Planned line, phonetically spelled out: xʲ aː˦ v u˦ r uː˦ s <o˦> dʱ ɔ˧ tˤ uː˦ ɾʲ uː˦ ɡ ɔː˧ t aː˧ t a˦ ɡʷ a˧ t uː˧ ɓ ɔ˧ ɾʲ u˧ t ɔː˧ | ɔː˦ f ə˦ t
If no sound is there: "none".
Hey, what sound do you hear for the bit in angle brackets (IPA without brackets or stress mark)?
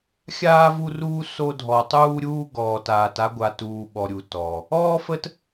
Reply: o˦